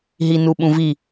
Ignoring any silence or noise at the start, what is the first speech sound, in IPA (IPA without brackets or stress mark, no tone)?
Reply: ɦ